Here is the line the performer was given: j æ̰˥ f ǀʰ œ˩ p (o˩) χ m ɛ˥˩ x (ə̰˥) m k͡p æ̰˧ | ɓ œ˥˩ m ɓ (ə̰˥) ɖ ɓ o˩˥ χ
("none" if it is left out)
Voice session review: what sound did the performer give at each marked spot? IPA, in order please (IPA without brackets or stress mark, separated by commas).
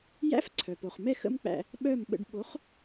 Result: o˩, ə̰˥, ə̰˧